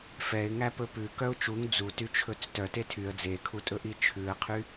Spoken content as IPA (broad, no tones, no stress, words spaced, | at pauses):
fɛɪ̯ŋæ pɵpʉ kœʊ̯t͡ʃuŋ d͡zu tyt͡ʃʰɵt͡stœ tetʰyə̯ d͡zekʰutʼɵʔi t͡ʃʰʉə̯qʰy